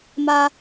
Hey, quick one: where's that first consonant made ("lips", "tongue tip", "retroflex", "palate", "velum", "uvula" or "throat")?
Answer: lips